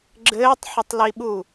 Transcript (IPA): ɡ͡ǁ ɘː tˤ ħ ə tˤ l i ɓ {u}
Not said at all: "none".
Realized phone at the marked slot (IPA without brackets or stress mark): u